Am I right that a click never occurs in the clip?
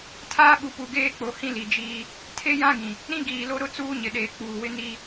yes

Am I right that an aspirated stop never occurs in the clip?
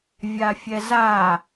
yes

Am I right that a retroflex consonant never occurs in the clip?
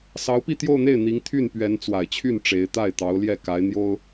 no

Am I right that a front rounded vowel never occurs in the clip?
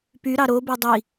no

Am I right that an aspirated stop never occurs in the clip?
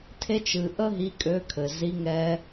no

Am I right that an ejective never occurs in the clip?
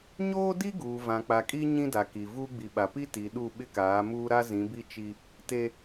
no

